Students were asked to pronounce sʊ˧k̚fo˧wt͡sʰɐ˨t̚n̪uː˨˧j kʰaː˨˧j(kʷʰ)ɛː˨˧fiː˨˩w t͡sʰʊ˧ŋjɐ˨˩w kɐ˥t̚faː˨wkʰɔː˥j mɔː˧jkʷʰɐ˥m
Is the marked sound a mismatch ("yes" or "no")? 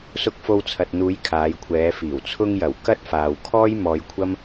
no